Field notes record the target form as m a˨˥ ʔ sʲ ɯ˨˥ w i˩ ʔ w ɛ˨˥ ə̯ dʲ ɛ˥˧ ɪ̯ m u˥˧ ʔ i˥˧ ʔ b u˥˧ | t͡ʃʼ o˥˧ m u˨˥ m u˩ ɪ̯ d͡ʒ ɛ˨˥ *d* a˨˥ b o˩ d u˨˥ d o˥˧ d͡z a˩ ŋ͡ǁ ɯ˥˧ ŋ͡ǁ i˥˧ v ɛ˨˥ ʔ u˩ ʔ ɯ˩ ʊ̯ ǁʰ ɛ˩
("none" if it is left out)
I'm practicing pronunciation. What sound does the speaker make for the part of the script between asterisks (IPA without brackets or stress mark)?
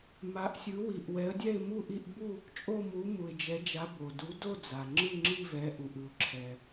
d͡ʒ